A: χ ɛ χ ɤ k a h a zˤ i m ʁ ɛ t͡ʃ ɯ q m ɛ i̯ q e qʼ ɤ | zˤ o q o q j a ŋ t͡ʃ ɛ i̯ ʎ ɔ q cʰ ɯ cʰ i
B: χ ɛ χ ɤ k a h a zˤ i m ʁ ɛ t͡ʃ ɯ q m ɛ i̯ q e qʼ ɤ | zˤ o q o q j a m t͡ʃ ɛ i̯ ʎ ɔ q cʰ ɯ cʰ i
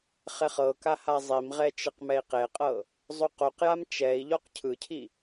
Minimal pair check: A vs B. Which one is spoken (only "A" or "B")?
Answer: B